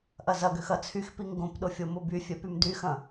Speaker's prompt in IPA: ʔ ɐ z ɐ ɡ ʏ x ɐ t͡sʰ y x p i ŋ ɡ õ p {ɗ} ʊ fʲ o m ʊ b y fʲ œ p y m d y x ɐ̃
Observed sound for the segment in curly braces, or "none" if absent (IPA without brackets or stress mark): ɗ